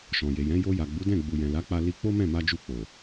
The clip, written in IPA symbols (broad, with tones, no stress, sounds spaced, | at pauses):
ʃ ɔ̃˨ j e˨ j ɛ̃˨˦ j o˧ j a˨ ɡ͡b u˨˦ d ɛ̃˦˨ ɡ͡b u˨ j ɛ̃˨ l a˨˦ k͡p a˧ l i˧ k͡p o˦ m ɛ̃˦˨ m a˧ d͡ʒ u˧ k͡p o˨